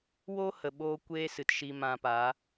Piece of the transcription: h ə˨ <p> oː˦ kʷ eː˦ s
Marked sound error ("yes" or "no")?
yes